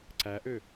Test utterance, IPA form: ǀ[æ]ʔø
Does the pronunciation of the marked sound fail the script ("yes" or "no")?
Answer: no